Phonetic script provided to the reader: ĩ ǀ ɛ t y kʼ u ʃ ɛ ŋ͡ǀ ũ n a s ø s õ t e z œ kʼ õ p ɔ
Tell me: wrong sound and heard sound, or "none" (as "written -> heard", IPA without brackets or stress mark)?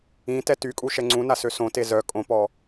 ǀ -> t